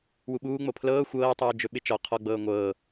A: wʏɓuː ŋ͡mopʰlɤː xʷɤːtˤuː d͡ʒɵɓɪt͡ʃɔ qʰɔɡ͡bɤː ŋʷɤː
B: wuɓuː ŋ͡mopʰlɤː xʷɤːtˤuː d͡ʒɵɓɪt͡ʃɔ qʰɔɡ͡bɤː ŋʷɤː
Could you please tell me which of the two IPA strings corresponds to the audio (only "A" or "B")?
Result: B